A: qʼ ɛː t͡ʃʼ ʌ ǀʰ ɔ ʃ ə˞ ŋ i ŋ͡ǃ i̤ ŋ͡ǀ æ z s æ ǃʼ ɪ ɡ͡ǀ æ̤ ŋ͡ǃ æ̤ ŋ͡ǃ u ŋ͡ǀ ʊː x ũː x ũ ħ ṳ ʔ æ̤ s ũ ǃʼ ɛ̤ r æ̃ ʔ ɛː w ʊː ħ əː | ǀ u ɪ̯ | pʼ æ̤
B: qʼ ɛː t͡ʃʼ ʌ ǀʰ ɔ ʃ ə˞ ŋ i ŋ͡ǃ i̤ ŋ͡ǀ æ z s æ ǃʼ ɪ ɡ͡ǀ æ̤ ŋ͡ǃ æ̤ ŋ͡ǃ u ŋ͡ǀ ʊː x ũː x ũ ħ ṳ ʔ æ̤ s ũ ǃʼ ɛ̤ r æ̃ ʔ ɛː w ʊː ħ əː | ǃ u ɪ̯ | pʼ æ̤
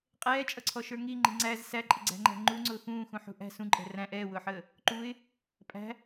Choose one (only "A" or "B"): B